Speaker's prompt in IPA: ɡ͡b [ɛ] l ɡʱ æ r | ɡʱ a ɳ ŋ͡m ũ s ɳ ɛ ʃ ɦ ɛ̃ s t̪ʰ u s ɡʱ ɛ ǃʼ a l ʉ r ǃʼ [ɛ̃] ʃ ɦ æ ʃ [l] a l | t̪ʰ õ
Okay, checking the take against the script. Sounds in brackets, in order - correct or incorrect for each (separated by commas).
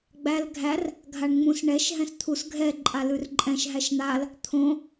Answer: incorrect, correct, incorrect